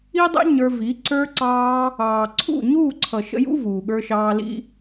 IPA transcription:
i˦ dˤ ɛ̰˦ ɲ ə˞˧ v i˨˦ ǀ ə˞˧ ǀ ɑː˧ | ɑː˨ ǀʰ ṵ˦˨ ɲ uː˦˨ ǀʰ ʌ˨ ʃ ə̰˧ j ṵ˦ v uː˨ ɠ ə˞˧ ʃ ɑː˧ l ḭ˦

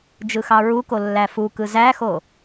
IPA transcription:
d͡ʒ ɯ x ɑ ɹ u k o lː æ f u k ɯ z æ x o

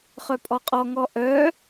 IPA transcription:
χ œ pʼ ɔ qʼ ɔ ŋ ɔ ʔ œ

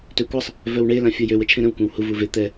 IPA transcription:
t ø kʷ a sˤ | v œ w ɳ e l ã fʲ o j ø w ə t͡ʃʰ ẽ ɾ ə̃ w kʷ ã w h u v u v e t̪ ɛ

